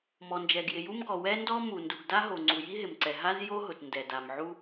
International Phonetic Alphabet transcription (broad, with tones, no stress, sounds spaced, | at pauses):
m ɔ˩ n d͡ʒ ɛ˩ ɡ j ɪ˩ j u˥ m ɡ ɔ˩ w ɛ˥ n d ɔ˥ m u˩ n d u˩ ɡ d a˥ ɦ o˩ ŋ͡ǀ u˩ j i˥ ɦ ɪ˩ m ǀ ɛ˩ ɦ a˥ z j o˥ ɦ ʊ˩ t n d ɛ˩ d a˩ m ʕ u˥